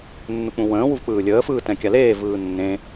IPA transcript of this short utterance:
nː u k͡p ũ w ə̃ː w u v k͡p ɯː lʲ əː f ɯː t ɛ̃ kʲ a l eː v ɯː nː ẽ

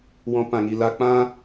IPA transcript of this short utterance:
w ɔ̃˧ p ã˨ ŋ i˨ l a˧ k͡p ã˦

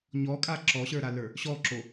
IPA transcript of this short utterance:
ɲ ɔ kʼ a ǁ ɔ ɕ ə˞ ɾ a l ə˞ | ɕ ɔ ǁ o

